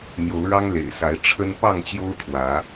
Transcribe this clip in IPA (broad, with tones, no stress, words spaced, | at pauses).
n̪jo˨˦ʊ̯ɻɑ˦ŋlḛ˨˩ɪ̯sa˨˦ɪ̯ ʈ͡ʂʰə˦n pɑ˥˨ŋt͡ɕjo˦ʊ̯t̪ʰwä˨˦